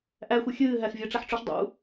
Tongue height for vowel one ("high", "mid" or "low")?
low